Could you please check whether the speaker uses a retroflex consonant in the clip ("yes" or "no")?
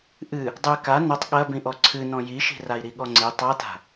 no